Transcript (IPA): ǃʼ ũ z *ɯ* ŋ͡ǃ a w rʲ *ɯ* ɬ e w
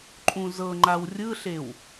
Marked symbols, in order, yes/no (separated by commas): no, yes